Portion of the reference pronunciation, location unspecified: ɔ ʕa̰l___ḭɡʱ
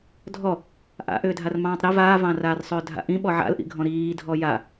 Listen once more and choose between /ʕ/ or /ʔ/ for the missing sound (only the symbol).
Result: ʔ